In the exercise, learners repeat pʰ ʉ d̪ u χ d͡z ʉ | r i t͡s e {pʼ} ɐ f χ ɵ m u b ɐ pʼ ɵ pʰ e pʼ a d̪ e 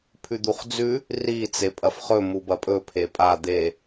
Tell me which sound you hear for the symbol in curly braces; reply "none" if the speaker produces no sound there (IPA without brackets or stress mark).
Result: pʼ